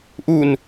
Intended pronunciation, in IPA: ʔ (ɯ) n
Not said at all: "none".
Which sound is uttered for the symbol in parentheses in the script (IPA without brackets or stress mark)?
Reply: u